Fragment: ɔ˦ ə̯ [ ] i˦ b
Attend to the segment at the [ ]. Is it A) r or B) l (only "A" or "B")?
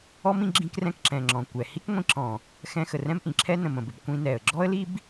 B